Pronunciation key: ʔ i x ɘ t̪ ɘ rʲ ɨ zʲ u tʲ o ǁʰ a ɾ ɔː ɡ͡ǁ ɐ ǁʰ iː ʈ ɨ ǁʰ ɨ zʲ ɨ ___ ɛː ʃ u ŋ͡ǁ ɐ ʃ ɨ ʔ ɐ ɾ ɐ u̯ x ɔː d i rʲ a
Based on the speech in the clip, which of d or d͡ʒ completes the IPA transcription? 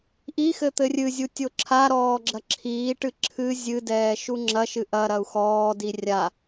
d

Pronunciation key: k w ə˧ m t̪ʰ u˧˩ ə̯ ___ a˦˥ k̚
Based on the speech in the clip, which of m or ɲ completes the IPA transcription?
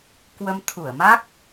m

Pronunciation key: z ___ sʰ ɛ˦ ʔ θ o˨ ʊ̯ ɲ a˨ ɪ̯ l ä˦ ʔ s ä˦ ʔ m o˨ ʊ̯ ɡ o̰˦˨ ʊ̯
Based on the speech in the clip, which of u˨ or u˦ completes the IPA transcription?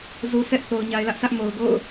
u˨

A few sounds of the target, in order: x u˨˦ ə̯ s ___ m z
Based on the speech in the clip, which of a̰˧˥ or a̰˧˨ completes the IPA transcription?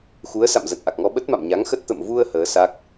a̰˧˨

